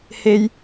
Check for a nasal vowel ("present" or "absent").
absent